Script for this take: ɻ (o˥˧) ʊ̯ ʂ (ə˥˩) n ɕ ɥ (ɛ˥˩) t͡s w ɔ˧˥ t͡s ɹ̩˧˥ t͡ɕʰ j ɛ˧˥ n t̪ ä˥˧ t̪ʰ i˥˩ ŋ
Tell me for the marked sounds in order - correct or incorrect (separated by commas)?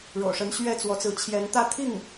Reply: incorrect, incorrect, correct